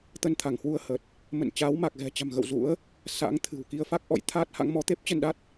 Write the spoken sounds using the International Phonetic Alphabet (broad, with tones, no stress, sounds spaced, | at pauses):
t̪ ə˧ n t̪ʰ a˧˩ ŋ h w u˧ ə̯ h ə˨˩ t̚ | m ə̰˧˨ n t͡ɕ aː˨˦ w m a˨˩ k̚ ɣ ɛ̤˨˩ t͡ɕ a̤˨˩ m ɣ ə̰˧˨ w z ṵ˧˥ ə̯ | s a̰˧˥ ŋ t̪ʰ ɨ̤˨˩ w k i˧ ə̯ f a˦˥ k̚ ʔ ɔ̰˧˨ j t̪ʰ aː˦˥ t̚ h a̰˧˥ ŋ m ɔ˨˦ t̪ e˦˥ p̚ t͡ɕ ə˧ n ɗ a˦˥ t̚